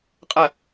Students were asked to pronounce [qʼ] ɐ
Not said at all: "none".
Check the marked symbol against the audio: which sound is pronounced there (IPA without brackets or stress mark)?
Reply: qʼ